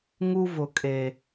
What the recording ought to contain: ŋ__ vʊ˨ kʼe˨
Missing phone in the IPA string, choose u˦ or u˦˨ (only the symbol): u˦